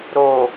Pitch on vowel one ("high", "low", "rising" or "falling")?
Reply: low